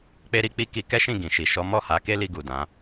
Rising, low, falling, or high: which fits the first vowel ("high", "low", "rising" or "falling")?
high